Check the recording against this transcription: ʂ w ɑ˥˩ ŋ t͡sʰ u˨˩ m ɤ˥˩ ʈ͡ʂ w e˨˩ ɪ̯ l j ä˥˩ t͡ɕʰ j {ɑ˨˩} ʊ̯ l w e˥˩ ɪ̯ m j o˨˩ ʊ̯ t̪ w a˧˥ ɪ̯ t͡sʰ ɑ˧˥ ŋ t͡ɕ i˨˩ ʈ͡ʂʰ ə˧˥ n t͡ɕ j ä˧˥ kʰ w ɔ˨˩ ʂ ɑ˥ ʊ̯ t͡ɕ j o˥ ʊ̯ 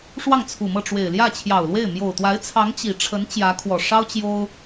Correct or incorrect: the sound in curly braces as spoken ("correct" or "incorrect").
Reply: correct